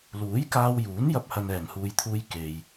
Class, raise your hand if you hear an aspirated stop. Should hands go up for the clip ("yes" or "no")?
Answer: yes